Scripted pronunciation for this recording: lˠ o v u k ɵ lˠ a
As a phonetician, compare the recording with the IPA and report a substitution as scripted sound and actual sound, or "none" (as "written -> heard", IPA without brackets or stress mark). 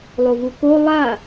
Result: ɵ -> o